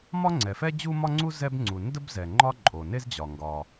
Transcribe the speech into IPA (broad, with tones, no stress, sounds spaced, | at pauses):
m ɒ˥ ŋ͡ǀ ɛ˩ f ɛ˥ d͡ʑ u˥ m ɒ˥ ŋ͡ǀ u˥ z ɛ˥ b ŋ͡ǀ u˩ n d ə˥ b z ɛ˩ ŋ͡ǃ ɒ˥ ǃʼ o˩ n e˥ z d͡ʑ ɒ˩ ŋ ɡ ɒ˩